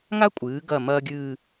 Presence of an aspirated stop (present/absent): absent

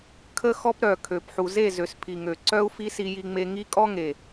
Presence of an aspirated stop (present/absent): present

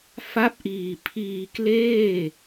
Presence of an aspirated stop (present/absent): present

